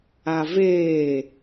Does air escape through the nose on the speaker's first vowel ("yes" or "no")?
no